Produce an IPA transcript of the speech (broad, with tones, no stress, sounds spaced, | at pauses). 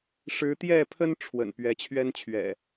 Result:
ʂ ɻ̩˨˦ t̪ j ɛ˥˨ pʰ ə˦ n ʈ͡ʂʰ w ə̰˨˩ n p ɥ ɛ˨˦ t͡ɕʰ ɥ ɛ˦ n t͡ɕʰ ɥ ɛ̰˨˩